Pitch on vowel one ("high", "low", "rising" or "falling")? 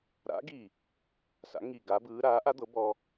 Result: rising